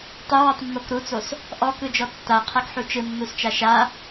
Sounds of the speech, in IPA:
tˤewɔtˤmːok ɾut͡sos | ʔɔkɯd͡ʒɔ tːaqʰakħu t͡ʃɯnːust͡ʃa ʃa

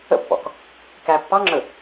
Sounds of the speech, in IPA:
ə̰pːɔ̰k | kæ pːɑŋ͡ǁɵ

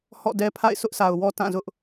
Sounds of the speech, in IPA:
hɔ̰˦˨dɛ˦ pʰa̰˦˨ɪ̯sʰʊ˦ʔsʰa˨ʊ̯wɔ˦ tã˦˨zʊ˦ʔ

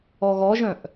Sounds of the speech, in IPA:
ɔɣɔʒœ̃ʔ

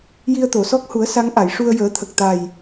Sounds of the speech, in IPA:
ji˧ə̯t̪o˨˩˨sɔ˦˥k̚hu˨˩˦ə̯ sa˧˥ŋ ʔa˨˩˨j ʂu˧ə̯jəː˨˩˦t̪ʰə˨˩k̚ t̪a˨˩j

